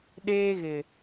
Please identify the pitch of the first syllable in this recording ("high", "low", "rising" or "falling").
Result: high